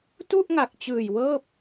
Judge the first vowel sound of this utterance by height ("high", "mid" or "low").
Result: high